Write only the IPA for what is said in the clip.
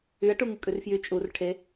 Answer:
yɐ̯ʈuŋu kʼʉrfjy t͡ʃʼur ʈʰe

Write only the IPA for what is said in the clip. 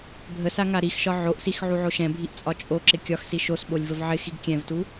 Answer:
bʱəsa ŋaɾixʃɒ ʕoʔsix ʕuʕoʃɛ̃bʱiʔ t͡sʼɒt͡ʃʼoǁɪ kʲɒxsi ʃosɓolʲ vəvʕɪxiɡ kʲɛ̃vtu

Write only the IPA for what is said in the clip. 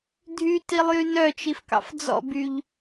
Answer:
dʱytilˠjy nœt͡ʃifkɑ̰f d͡zɔ̰byʎ

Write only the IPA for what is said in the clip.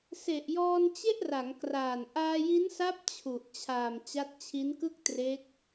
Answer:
se˨˩ʔjɔː˧n t͡ɕe˥˩ʔra˩˦ŋkraː˨˩n ʔaː˧ji˦˥nsa˦˥p̚ t͡ɕʰu˨˩ʔ t͡ɕʰaː˨˩m t͡ɕa˦˥t̚ t͡ɕʰi˦˥nkɯ˥˩k̚tre˦˥k̚

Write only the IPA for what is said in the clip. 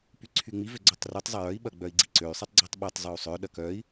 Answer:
pyǀʰyŋ͡mi vøɡ͡ǀøtˤrutˤ zˤɐjœi̯ ɓɐɡ͡bœi̯ɡ͡ǀiǀøy̯ sˤitˤɡ͡ǀitˤɓɛtˤ zˤøu̯sˤœ ɗɐkœi̯

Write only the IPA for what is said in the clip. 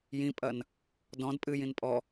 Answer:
jĩpʼɐn | dɔ̃d pʼɨjĩn pʼɔ

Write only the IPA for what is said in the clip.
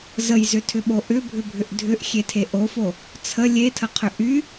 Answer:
zəjzʏtʰʏɓo ʔʏbʱʏbʱʏʔ dʱʏʔxʲetʰe ʔofo | t͡sʰə lʲetʰəqʰʏ ʔy

